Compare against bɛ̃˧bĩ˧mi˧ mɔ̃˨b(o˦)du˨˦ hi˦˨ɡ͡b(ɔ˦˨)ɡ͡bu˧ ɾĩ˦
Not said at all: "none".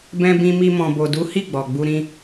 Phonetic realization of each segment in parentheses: o˨, ɔ˨

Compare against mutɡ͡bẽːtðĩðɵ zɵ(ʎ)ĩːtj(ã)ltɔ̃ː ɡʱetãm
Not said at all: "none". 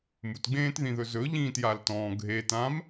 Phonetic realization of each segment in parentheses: ʎ, a

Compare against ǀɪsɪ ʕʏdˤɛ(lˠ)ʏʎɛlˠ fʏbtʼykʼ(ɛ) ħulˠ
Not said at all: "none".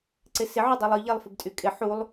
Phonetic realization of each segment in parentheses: lˠ, ɪ

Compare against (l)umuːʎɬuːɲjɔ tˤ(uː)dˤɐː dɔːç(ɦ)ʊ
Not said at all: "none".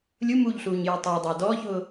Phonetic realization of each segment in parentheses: lʲ, ʊː, ɦ

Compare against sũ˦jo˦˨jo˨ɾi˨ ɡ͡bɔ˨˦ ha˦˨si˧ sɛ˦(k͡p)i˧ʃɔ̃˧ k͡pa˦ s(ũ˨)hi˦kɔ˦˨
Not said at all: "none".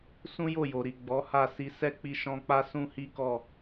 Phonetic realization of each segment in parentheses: k͡p, ũ˦

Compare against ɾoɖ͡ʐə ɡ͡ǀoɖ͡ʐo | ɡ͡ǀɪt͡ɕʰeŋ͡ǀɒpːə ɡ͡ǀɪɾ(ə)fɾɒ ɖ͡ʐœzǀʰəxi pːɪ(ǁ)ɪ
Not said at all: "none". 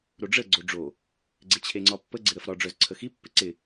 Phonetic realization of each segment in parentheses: ə, ǀ

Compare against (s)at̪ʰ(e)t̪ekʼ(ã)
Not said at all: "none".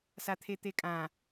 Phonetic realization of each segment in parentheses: s, e, ã

